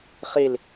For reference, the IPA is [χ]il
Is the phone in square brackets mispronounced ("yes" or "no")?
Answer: no